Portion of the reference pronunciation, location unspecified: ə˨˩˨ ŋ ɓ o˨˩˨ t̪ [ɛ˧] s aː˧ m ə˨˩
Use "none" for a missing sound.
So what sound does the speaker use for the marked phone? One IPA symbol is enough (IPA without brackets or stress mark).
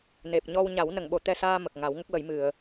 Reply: ɛ˧